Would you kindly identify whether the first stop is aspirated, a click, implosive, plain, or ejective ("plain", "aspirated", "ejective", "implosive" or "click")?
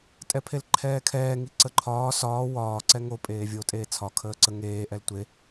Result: ejective